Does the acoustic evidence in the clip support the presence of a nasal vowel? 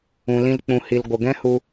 yes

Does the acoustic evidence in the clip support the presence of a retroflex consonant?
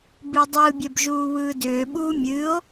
no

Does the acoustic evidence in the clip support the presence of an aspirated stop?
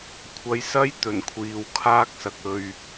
yes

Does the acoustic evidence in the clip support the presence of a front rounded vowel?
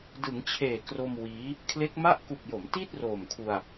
no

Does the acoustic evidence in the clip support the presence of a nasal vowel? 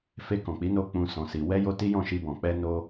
yes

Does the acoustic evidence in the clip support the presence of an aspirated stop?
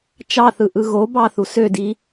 no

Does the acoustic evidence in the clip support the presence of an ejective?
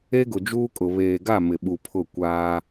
yes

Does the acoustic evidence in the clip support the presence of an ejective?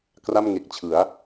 no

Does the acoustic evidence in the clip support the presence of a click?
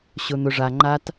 yes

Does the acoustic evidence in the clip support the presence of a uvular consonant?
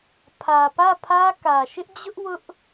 no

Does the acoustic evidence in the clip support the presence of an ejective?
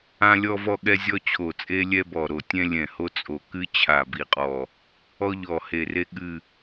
yes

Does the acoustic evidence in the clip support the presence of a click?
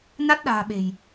no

